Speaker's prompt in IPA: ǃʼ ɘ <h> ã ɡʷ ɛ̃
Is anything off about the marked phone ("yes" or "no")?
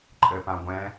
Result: yes